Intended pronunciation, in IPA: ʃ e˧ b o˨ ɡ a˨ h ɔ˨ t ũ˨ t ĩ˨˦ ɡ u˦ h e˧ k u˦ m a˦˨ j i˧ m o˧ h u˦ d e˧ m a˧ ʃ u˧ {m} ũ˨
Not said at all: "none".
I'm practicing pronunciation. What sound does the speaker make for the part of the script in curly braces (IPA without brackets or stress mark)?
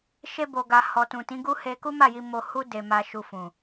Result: f